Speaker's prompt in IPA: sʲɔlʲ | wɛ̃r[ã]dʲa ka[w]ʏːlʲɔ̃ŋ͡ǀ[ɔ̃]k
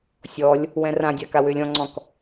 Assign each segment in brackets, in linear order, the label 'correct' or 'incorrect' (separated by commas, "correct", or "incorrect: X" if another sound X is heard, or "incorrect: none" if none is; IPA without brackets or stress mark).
correct, correct, correct